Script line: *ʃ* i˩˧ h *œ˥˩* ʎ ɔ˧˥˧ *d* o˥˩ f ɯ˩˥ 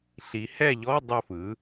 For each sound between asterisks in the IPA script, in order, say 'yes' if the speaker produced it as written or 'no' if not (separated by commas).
no, no, no